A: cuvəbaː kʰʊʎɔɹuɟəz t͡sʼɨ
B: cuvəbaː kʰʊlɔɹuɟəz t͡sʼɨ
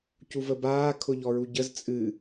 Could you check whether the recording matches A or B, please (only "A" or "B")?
A